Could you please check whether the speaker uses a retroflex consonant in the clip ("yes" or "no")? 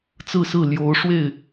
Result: yes